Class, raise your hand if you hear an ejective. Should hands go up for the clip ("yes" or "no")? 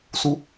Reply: no